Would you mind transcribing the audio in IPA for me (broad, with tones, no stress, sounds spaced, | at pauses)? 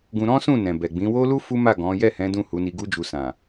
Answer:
ɡ ũ˧ ɾ ɔ̃˦ s ũ˦˨ n ɛ̃˨ b ɛ˨ ɡ͡b ĩ˨˦ w o˦ l u˦ f u˦ m a˦˨ ɡ ɔ̃˨˦ j ɛ˦˨ h ɛ̃˨˦ d ũ˦˨ h u˨˦ n i˧ ɡ u˦ d͡ʒ u˧ s ã˨